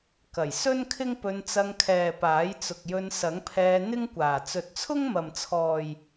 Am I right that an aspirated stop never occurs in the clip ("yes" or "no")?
no